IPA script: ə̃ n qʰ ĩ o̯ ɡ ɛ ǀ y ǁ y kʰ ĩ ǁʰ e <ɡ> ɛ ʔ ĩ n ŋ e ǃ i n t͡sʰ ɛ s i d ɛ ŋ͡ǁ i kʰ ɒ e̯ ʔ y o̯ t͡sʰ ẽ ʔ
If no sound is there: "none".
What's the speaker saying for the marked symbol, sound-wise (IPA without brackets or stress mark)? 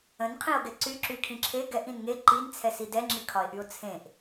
ɡ